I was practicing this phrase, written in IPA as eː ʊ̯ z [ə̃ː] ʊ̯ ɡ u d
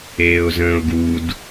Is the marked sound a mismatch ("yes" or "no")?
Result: no